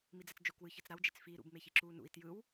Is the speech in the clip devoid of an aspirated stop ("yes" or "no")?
yes